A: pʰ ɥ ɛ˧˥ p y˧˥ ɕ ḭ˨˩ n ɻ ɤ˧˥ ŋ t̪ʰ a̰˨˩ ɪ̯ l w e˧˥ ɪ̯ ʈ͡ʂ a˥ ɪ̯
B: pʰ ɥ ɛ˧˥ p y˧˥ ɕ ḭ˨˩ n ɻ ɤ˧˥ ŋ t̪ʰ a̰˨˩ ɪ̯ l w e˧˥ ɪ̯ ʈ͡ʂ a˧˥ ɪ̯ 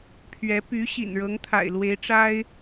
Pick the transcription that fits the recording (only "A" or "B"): A